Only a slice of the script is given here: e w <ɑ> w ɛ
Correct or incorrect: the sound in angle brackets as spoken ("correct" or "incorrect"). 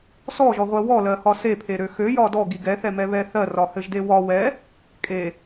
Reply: incorrect